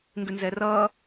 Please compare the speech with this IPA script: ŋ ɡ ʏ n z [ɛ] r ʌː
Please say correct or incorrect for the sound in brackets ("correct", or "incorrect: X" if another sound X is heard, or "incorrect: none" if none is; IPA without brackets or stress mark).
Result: correct